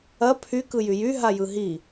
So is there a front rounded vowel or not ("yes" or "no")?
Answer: yes